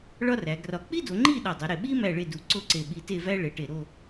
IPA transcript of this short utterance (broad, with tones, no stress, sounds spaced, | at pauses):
ɭ ɒ˥ r æ˩˧ ɡ r ɒ˧˩ k͡p i˥ d o˩˧ ŋ͡ǃ i˥˧ ɗ ɒ˧˩ dˤ u˩˧ ɾ e˧˩ ɓ i˥ m æ˥˧ ɭ e˥˧ d u˧ ǀ o˥˧ ǀ e˧˩ ɓ i˧ t e˥˧ v æ˥ ɭ e˩˧ ʈ e˧˩ ɾ o˥˧